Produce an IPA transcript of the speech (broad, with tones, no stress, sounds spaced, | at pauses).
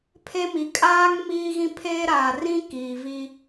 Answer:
pʰ e˦ m i˨ kʼ aː˦ ŋ m iː˦ ɣ ĩ˦ pʰ eː˦ ɾ aː˨ r ĩ˦ k iː˨ v i˦